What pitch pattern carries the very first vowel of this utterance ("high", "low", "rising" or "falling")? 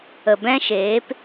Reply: low